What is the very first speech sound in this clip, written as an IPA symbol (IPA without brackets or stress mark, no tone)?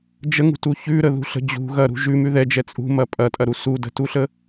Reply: d͡ʒ